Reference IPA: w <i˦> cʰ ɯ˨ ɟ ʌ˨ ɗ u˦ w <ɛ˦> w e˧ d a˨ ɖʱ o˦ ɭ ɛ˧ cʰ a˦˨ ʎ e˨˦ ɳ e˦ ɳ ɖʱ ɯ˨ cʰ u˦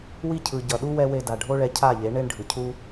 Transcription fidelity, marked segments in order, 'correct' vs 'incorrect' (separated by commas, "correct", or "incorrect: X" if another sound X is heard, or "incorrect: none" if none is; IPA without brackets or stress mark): correct, correct